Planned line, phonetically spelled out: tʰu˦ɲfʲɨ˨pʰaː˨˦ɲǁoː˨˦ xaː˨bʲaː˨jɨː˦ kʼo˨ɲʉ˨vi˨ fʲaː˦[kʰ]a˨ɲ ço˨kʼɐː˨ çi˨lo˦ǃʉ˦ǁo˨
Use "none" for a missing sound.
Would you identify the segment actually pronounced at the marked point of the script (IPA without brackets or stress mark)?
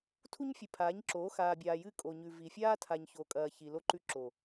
tʰ